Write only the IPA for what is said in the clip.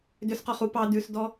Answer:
dʏsqɔχu pɑ dʉsdɔ

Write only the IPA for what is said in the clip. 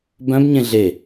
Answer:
bœ̃b ɲẽɮe

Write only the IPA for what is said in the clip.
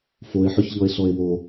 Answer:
foe̯ħœçʎɔe̯ɬɔe̯ wo

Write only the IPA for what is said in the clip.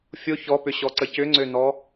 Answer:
fʲo çɔpʏɕɔǀə cʏŋ͡ǀønɔ

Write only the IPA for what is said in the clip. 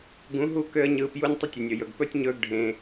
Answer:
ɡũ˨˦ɦu˦˨ kø˦ə̯ɲɯː˧pju˦nʲ tˤə˦tʲə˨nʲɵ˨jɵ˨ɡ pɵ˦tʲɲɵː˦ɡɖʱẽ˧

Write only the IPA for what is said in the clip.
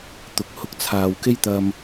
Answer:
t̪ʊ˨k̚ hʊ˧k̚t͡sʰaː˨wke˥jt̪ɐ˧m

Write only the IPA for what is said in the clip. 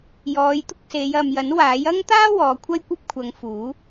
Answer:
jɔː˨˧jt̪ʊ˥k̚se˨˧j ɐ˨mjɐ˨˥nwaː˨˥j ɐ˥ŋt̪aː˥ wɔː˨˧kʷʰɐ˥jkʷɐ˥p̚kʷʰɐ˨˧ŋ fuː˨˥

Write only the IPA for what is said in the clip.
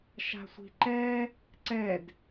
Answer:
ʃa̤sʷi̤ǃɛ | ǀɛd

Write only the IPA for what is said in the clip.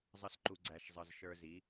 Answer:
zˤʌ˦sǃu˧ ɡ͡ǀæ˧ʃzˤʌ˧z ʃə˞˧zi˨˦

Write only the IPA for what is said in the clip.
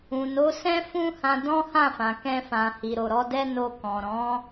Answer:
ũ˨no˨˦sɛ̃˦fũ˦ hã˧dɔ̃˦hã˦˨fã˨ kɛ̃˧fã˨hi˨ɾo˨ ɾɔ˨˦dɛ˦ no˧kɔ̃˨ ɾɔ̃˨˦

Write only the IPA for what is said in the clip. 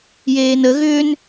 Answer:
jeːnə ɣʏːn

